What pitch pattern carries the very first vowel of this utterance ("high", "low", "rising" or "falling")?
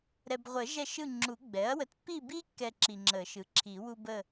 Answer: low